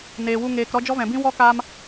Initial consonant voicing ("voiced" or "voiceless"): voiced